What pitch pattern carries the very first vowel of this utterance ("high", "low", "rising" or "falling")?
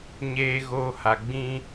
low